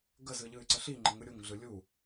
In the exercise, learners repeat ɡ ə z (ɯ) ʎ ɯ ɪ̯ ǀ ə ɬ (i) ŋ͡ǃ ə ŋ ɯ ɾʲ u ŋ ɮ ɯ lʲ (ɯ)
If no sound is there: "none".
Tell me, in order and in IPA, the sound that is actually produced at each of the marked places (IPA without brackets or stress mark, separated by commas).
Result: ɯ, i, u